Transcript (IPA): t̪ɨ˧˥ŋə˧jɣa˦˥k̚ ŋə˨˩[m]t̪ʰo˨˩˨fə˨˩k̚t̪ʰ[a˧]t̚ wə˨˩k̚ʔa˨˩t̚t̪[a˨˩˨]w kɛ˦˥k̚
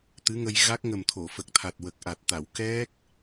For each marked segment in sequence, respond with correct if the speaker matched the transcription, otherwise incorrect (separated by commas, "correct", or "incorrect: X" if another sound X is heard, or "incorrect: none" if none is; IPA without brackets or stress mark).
correct, incorrect: a˨˩, correct